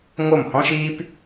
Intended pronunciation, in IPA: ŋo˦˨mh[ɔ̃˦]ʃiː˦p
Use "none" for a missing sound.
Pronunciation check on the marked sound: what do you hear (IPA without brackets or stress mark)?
ɔ̃˦